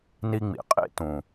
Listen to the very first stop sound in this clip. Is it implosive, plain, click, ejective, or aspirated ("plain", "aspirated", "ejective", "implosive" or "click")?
ejective